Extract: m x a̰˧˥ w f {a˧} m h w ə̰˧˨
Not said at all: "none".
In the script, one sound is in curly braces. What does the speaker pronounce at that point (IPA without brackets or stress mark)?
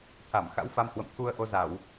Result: a˧